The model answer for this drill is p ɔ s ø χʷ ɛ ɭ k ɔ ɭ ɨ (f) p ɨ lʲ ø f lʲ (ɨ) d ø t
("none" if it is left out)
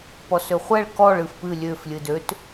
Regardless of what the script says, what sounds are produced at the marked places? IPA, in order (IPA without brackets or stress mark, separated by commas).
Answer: f, ɨ